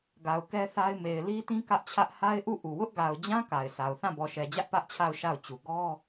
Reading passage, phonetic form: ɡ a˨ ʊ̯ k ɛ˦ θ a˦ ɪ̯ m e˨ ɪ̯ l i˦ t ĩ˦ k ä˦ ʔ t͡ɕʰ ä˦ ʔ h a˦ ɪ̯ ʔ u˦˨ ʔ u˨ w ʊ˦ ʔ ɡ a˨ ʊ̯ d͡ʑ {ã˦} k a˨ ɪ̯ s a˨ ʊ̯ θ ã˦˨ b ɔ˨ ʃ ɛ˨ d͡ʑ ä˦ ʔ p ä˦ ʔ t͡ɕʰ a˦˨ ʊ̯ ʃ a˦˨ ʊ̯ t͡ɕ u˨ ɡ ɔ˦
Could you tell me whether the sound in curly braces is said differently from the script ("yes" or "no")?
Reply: no